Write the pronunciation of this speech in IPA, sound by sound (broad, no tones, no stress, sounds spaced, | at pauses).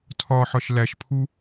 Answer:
tʰ ɒ ħ ɒ ʃ l æ ʃ pʰ u